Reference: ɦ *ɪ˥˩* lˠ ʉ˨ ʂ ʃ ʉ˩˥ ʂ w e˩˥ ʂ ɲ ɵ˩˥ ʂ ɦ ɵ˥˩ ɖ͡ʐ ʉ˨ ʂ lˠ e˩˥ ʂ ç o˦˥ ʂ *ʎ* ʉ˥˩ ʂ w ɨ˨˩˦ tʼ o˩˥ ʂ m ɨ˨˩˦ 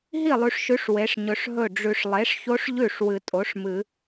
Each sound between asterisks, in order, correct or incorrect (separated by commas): incorrect, correct